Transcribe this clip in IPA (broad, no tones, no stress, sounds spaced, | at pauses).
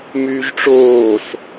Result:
m yː ʒ ʈ͡ʂ oː s